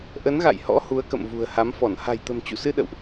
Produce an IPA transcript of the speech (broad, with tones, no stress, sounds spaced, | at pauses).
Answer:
ʔ ə˨˦ n ɣ a̰˧˨ j h ɔ̰˧˥ h u˨˦ ə̯ k ə̰˧˨ m v ṳ˨˩ ə̯ h a˨˦ m f ɔ˧˩ n h a̤˨˩ j t̪ ə̤˨˩ m t͡ɕ ṵ˧˨ s ɨ˧ ɗ ə̰˧˨ w ʔ